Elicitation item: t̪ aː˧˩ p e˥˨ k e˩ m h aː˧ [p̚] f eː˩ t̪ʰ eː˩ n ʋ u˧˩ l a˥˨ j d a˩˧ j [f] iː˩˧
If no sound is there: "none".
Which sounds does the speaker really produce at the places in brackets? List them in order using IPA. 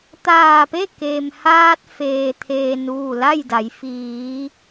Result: t̚, f

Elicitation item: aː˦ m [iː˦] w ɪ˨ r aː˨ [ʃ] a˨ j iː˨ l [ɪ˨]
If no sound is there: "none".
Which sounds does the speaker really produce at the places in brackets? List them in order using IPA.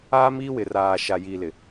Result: iː˦, ʃ, ɪ˨

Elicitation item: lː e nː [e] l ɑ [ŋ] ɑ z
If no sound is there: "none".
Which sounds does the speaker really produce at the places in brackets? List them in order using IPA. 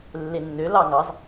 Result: ø, ŋ

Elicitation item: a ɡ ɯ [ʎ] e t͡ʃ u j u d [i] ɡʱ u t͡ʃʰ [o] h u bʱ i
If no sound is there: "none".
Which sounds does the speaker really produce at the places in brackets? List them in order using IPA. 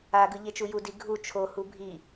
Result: ʎ, i, o

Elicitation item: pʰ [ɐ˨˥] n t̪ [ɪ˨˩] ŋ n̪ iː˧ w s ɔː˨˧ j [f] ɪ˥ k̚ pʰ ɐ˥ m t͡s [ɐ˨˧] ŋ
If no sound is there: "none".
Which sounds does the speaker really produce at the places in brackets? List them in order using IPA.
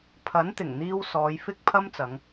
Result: ɐ˨˥, ɪ˨˩, f, ɐ˨˧

